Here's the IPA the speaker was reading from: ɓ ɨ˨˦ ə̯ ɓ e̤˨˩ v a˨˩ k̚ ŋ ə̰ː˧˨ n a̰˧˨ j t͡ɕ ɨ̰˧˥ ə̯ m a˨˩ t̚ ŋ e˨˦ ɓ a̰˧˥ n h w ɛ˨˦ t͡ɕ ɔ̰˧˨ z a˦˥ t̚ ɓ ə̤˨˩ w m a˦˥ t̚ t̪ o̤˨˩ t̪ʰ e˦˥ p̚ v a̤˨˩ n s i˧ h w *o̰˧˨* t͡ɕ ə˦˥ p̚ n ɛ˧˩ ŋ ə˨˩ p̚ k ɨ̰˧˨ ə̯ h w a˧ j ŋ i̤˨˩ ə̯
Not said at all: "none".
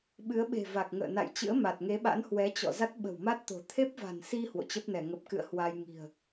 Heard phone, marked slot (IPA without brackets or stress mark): o̰˧˨